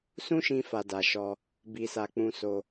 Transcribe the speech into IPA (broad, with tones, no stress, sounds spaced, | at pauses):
s ũ˦ ʃ ĩ˧ f a˧ d a˨ ʃ ɔ˧ | b i˧ s a˧ k͡p ũ˧ s o˧